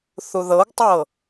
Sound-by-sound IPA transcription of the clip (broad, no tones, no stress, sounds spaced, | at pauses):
θ u ð ɤ ɡ tˤ ɤ